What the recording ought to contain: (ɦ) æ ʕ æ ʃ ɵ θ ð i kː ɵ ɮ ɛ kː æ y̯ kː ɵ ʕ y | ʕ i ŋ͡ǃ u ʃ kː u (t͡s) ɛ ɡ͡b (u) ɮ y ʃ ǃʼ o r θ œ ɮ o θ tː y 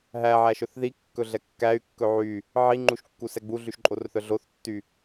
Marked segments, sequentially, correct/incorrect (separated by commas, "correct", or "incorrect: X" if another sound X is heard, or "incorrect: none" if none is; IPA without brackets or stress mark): correct, incorrect: s, correct